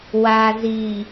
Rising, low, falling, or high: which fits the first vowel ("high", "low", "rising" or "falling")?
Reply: low